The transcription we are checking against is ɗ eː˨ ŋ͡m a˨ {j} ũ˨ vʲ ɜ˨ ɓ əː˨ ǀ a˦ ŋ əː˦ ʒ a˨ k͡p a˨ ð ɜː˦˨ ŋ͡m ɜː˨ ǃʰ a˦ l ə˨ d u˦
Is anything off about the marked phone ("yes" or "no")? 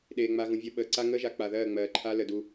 yes